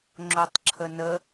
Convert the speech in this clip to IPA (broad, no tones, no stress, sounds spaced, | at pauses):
ŋ͡ǁ o tˤ ǁʰ ə n ə